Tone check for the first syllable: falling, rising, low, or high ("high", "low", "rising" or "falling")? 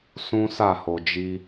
high